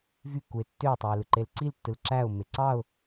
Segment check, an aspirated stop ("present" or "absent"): absent